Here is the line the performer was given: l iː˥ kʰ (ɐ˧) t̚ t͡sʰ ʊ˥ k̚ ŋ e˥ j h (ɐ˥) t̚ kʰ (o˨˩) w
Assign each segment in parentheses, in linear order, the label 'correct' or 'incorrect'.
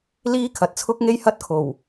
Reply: incorrect, correct, correct

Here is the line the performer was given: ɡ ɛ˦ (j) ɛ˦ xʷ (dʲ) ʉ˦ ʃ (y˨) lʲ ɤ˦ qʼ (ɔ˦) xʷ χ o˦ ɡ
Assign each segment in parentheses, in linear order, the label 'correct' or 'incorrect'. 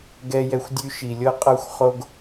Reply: correct, correct, incorrect, incorrect

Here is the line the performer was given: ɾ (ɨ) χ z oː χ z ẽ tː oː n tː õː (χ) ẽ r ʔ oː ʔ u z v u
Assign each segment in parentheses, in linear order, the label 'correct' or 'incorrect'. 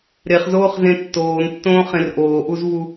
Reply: incorrect, correct

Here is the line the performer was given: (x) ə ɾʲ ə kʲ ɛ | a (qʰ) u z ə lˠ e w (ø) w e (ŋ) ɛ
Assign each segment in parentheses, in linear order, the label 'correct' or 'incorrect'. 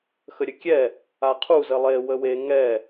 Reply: correct, correct, incorrect, correct

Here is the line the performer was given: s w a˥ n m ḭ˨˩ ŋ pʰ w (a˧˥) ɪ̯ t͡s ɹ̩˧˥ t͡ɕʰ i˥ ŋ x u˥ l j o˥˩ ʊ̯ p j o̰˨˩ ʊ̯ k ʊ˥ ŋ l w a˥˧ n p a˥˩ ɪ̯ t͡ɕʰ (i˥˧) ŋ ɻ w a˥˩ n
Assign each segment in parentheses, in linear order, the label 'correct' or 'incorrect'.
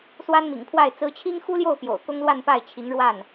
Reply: incorrect, incorrect

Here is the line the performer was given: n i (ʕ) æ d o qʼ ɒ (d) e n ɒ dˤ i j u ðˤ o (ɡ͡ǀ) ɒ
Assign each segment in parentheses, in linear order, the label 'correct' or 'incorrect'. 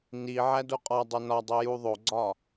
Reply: correct, incorrect, correct

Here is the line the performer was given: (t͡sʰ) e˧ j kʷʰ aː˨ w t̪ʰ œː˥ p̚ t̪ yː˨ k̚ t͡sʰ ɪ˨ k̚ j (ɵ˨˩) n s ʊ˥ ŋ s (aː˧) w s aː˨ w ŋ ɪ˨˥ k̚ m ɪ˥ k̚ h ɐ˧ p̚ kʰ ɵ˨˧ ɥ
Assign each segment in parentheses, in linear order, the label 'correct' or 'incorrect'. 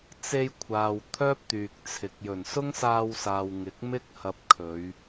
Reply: incorrect, correct, correct

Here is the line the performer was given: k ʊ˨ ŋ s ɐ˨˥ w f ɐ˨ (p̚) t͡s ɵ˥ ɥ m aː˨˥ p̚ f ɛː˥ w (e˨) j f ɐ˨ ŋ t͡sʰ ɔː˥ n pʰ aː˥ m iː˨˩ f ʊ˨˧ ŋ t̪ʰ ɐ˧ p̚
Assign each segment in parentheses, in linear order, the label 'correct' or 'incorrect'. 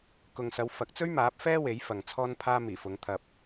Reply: incorrect, incorrect

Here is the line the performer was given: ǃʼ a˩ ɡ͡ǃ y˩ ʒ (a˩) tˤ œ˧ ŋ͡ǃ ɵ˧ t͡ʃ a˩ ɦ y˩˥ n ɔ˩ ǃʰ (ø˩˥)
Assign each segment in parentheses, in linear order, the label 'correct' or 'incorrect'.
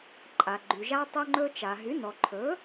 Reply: incorrect, incorrect

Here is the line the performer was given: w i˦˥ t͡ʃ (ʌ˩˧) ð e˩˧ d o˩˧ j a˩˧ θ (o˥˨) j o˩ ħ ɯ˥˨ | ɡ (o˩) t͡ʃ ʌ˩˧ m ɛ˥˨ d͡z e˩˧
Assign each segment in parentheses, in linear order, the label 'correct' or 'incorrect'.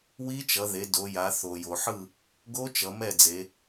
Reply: correct, incorrect, incorrect

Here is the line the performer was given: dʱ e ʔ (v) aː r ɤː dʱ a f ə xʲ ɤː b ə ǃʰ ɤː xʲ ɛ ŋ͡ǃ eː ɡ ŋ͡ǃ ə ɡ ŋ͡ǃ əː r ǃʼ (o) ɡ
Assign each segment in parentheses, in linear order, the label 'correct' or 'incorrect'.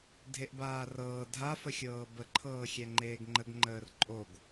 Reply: incorrect, correct

